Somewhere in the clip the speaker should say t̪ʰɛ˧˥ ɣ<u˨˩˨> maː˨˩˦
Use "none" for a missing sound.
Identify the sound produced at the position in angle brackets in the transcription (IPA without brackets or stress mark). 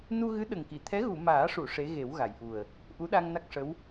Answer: u˨˩˨